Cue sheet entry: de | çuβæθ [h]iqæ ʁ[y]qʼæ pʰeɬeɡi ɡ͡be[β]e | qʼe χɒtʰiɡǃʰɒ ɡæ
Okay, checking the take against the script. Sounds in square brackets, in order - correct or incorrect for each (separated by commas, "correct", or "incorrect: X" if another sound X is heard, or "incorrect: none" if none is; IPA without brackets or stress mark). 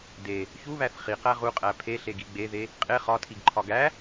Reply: incorrect: χ, incorrect: u, incorrect: ð